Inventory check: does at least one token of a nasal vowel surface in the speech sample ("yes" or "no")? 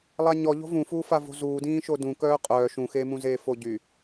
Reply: yes